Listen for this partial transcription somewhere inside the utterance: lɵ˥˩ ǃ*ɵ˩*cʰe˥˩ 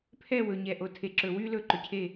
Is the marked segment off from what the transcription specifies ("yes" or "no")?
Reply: no